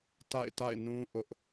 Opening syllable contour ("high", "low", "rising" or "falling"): falling